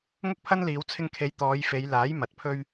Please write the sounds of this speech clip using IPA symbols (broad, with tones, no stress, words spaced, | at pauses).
ŋʊ˥k̚pʰɐ˥nliː˨˧w t͡sʰɪ˧ŋkʰe˨˧j t̪ɔː˨˧jfe˨˧jlaː˨˥j mɐ˨˥t̚pʰɵ˥ɥ